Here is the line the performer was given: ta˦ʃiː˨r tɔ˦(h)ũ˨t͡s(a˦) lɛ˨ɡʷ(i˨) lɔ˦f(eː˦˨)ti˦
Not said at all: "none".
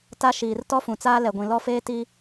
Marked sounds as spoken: f, aː˦, ĩ˨, eː˦

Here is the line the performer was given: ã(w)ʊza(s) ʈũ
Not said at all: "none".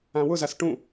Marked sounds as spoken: w, s

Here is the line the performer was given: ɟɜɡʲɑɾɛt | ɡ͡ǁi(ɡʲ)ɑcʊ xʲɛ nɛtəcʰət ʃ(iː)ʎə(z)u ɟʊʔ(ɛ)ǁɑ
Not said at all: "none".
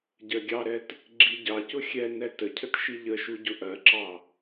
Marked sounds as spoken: ɟ, i, ʃ, ɜ

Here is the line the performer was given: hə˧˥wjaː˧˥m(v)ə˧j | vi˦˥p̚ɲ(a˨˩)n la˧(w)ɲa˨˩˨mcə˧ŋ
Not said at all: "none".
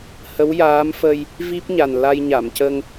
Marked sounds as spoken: f, a˨˩, j

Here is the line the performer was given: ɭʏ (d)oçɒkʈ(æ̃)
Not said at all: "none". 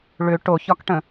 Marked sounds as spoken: ʈ, ə̃

